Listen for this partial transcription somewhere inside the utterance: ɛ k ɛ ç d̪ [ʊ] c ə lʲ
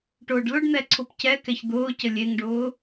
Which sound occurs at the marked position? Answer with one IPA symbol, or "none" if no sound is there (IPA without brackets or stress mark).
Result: ʊː